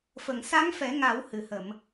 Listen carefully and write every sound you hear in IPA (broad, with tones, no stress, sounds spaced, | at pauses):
f ə˨˩˨ ŋ s a˧˥ ŋ f ɛ˨˩˦ ŋ a˨˩˦ w h ɨ˨˩˨ h ə˨˩˨ m